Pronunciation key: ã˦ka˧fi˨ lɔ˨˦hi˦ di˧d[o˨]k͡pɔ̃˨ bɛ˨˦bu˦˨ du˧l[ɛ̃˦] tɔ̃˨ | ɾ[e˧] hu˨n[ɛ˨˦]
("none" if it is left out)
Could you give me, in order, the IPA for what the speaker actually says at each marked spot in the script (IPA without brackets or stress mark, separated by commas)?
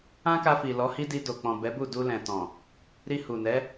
o˨, ɛ̃˨, i˧, ɛ˨˦